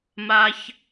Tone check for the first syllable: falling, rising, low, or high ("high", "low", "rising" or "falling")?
high